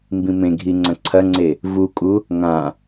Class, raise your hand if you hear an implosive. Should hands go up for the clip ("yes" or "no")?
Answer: no